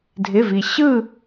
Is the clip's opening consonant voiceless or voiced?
voiced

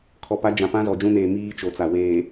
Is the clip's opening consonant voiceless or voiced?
voiceless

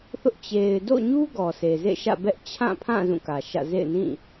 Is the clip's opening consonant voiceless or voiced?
voiceless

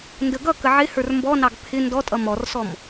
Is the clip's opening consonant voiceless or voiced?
voiced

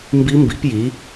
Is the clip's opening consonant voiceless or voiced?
voiced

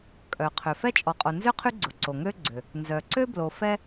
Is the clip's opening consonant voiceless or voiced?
voiceless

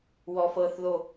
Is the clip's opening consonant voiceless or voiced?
voiced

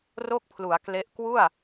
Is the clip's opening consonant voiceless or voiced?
voiced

